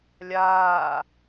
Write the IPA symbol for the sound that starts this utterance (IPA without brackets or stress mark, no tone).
lʲ